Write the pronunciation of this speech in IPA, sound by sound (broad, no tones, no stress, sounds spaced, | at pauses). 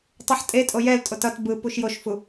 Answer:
tˤ o ħ tʼ e tʼ o j ɛ l tʼ o t ʌ t b ɯ p u ʃ j o ʃ f u